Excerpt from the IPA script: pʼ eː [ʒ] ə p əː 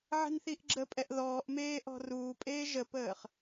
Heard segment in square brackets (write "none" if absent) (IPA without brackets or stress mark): ʒ